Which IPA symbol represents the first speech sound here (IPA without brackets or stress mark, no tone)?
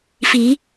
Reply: f